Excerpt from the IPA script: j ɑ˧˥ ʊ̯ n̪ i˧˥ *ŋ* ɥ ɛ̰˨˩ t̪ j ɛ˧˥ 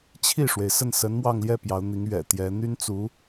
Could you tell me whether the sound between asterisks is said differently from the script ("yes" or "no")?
no